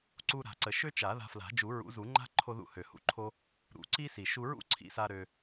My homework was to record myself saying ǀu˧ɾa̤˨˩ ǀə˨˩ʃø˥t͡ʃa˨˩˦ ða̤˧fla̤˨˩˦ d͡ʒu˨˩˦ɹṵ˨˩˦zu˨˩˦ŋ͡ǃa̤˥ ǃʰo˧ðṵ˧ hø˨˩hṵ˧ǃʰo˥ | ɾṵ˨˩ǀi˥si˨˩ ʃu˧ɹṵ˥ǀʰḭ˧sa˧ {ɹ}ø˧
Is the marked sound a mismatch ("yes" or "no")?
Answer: yes